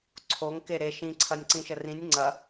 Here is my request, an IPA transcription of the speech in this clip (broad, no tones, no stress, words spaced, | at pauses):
ǀʰoŋ keɾe ʃĩǀʰɐnʲ ǀĩʃərĩnʲ ŋ͡ǀɐ